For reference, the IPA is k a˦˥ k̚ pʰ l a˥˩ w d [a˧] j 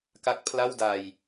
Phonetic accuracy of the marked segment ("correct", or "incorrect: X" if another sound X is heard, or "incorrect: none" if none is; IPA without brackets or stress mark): correct